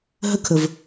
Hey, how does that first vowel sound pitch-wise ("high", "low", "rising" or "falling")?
high